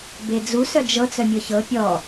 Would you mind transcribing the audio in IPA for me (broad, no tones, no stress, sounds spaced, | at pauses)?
b e d͡z u s œ d͡ʒ ɤ t͡s œ mʲ ɤ ç ɤ pʲ ɔ